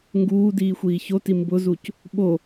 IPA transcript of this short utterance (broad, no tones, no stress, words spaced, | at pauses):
ŋɡuːdiː xʷiːçoti mbʊzuc | ɓo